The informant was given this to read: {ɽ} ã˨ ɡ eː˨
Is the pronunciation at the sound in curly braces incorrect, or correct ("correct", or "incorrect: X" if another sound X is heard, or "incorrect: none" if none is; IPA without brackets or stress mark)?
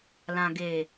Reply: incorrect: l